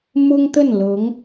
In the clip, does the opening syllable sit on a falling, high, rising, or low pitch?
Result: high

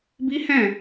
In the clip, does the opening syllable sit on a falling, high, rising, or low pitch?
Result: high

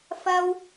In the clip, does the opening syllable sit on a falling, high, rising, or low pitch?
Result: high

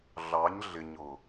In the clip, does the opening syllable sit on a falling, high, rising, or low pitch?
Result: rising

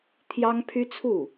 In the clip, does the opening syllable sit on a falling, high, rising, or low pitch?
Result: high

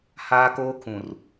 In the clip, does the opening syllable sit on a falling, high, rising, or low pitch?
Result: high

